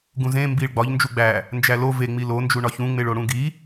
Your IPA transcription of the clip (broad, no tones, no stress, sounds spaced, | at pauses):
ɡ ũ z ẽ m b i ɭ ɡ͡b ɒ ʎ n d͡ʒ u ɡ͡b æ | n d͡ʒ æ l o v e ŋ͡m i l o n d͡ʒ u ɳ ɒ ç ũ ŋ͡m e ɭ o ɽ ũ ɡ i